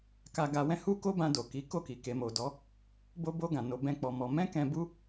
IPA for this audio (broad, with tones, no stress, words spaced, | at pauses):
ka˧ɡa˧wɛ̃˦ hu˦ko˦bã˧do˨ ki˨˦ko˦˨ki˨ ke˨mo˨dɔ˨˦ | bo˧bo˧ ɡã˨ no˧bɛ̃˦k͡pɔ˧mɔ˧ mɛ̃˦kɛ̃˧bu˦